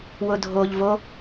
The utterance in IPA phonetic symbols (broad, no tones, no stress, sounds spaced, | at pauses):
w ʊ dʱ o ʎ v o